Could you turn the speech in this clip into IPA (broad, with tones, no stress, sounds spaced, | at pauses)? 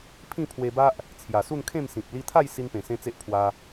pʰ ĩ˥˧ pʰ w e˧ b a˦ ʔ | t͡sʰ j a˨˩ s u˥˧ n kʰ ẽ˥˧ m s ĩ˨ p̚ l i˧ t̪ʰ a˥˧ j s i˦ n p ẽ˨˩ s ẽ˦ t͡s e˦ ʔ pʰ w a˧